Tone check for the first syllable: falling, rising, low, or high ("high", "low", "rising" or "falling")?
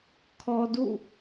low